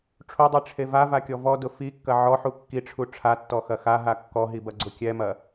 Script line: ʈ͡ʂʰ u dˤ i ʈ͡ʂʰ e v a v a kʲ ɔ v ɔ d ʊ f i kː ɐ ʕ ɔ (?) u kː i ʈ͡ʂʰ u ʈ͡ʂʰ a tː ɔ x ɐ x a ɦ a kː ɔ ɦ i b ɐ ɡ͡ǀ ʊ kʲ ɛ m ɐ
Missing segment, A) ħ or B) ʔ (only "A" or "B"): A